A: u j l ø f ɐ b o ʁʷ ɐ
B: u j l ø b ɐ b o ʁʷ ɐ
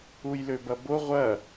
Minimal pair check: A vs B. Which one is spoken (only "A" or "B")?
B